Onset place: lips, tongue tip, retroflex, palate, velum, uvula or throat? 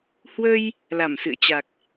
throat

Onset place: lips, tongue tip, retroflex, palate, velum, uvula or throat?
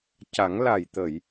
palate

